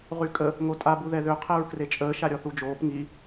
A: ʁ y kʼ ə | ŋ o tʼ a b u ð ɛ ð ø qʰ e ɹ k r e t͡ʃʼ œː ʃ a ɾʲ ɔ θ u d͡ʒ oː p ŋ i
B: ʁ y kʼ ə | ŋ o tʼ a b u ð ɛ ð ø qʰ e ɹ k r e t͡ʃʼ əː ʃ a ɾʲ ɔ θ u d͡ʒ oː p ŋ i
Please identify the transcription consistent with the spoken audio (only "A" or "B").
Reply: B